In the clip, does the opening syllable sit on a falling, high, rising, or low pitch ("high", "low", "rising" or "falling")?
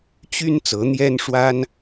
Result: high